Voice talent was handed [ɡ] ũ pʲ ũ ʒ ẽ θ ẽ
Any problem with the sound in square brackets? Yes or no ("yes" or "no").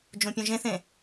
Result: yes